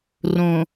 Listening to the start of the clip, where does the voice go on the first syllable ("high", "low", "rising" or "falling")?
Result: low